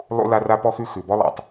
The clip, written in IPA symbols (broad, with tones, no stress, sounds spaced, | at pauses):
lˠ ṵ˦ l a˦ r a˦ p ɔ˦ x ʉ˦ x ʉ˨ b ɔ˦ lˠ a̰˨ tˤ